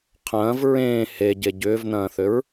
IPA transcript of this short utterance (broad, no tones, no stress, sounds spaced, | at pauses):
qʰ ɐ̃ː v ɹ ẽː h e ɟ e ɟ ʏː v n̪ ɐ̃ː θ ʏ ɹ